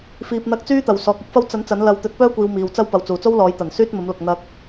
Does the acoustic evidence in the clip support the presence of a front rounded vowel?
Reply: yes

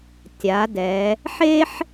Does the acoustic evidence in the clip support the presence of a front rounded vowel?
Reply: no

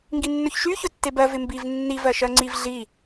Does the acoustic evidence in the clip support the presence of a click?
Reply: yes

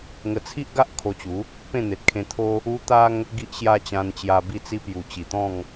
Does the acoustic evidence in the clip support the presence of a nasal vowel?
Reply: yes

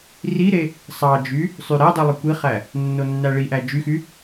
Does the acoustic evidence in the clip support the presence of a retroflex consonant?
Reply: yes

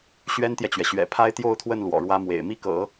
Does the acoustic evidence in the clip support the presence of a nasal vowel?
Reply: no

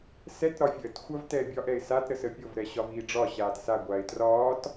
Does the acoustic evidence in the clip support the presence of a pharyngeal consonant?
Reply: no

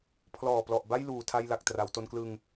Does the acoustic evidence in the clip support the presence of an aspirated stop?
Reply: yes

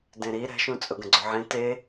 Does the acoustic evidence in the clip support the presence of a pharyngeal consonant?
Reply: yes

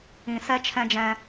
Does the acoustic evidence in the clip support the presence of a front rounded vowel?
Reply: no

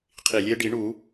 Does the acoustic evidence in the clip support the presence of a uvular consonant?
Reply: yes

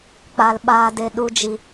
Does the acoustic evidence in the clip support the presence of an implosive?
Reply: yes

